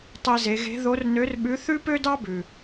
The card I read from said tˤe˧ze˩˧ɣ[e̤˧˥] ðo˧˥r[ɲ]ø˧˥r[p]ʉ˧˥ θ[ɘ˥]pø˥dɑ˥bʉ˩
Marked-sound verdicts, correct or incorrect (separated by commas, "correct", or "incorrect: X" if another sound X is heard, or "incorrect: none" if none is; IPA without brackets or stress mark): correct, incorrect: n, incorrect: ɓ, incorrect: ʉ˥